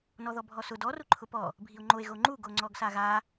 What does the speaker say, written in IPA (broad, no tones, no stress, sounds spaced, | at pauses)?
n ɔ ð ɔ bʱ ɔ s ʊ d ɔ r u ǃʰ ʊ p ɔ | bʱ i o̯ ŋ͡ǃ o e̯ ɣ o ŋ͡ǃ u ɡ o ŋ͡ǀ ɔ ɡ s a ɣ a